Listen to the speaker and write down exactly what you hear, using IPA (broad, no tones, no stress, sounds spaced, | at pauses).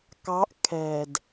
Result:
k ɑ ʔ kʰ ɛ d